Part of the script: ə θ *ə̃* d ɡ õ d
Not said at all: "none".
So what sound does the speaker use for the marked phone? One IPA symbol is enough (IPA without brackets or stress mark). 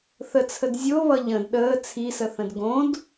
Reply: ə̃